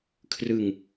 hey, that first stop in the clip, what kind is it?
aspirated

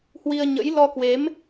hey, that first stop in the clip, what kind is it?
plain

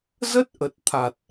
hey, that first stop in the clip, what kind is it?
plain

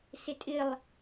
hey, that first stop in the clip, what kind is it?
ejective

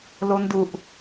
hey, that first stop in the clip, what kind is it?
plain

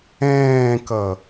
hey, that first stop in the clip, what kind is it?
plain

